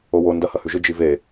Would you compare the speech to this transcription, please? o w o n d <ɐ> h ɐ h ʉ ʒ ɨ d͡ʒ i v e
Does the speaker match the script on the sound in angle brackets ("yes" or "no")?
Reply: yes